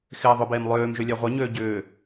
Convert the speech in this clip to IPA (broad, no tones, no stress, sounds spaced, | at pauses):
x ɪː ðˤ ʊ b eː m lˠ øː m ʒ ʏ lʲ ɛ ʁʷ œ ɲ øː ɟ ʏː